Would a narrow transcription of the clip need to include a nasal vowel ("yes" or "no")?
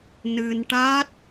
no